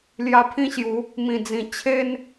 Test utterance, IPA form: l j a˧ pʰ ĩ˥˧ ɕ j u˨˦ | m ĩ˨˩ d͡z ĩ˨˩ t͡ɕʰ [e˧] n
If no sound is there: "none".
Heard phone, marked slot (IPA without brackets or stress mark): e˧